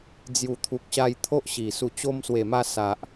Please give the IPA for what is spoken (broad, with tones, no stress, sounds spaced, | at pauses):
d͡z j u˨˩ t̪ʰ u˨ k̚ ɕ a˧ j t̪ʰ o˦ ʔ ɕ i˨˩ s u˨˩ t͡ɕ o˧ m s w e˨˩ m a˧ s a˨ ʔ